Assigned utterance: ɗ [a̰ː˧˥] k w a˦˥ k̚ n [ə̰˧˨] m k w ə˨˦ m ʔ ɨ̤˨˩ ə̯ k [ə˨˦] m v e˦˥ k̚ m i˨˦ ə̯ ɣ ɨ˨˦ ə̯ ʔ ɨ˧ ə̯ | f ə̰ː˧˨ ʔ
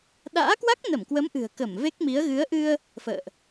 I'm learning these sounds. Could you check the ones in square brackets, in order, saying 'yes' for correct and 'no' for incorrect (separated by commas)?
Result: yes, no, no